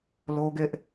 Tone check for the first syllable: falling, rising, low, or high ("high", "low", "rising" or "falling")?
high